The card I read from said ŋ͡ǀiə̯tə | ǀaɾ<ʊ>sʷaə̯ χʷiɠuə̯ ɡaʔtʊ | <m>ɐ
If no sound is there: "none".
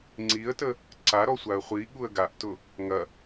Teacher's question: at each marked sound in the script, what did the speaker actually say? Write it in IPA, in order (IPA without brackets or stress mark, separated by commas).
ɔ, ŋ